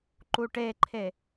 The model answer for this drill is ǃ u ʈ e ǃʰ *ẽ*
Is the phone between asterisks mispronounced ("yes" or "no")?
yes